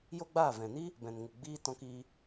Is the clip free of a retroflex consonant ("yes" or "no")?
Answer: yes